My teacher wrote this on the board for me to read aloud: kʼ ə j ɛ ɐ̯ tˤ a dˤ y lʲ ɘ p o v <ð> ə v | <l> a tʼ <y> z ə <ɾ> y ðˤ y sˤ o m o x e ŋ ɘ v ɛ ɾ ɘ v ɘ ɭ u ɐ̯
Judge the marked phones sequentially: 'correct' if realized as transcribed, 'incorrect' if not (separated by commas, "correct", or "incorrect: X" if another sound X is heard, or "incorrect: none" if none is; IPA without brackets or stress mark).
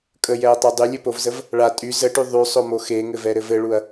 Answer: incorrect: z, incorrect: ɭ, correct, incorrect: ʈ